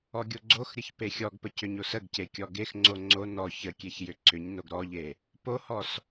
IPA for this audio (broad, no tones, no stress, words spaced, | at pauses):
ɔɡʲoɡ͡ǀoxɾʲəç pexʲɔɡpə cʏɲosəɡce kʲɔɡexŋ͡ǀo ŋ͡ǀo nɔ çəkʲeç jʏǀʏɲnoɡ ɾɔʎe | pohɔs